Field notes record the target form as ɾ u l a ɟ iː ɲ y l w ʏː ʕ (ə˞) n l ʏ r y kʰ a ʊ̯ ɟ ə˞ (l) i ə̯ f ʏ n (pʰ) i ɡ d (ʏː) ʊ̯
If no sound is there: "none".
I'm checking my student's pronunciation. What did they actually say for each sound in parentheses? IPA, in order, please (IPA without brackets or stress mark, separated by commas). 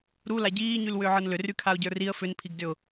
ə˞, r, pʰ, ʏ